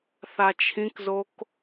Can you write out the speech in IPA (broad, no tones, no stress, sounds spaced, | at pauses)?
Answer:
θ a t͡ʃʰ ĩ k z o k